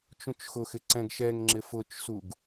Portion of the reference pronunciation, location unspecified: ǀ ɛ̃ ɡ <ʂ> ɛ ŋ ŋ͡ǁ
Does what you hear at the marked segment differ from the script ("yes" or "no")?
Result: yes